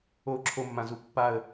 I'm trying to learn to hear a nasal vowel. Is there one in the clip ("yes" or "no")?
yes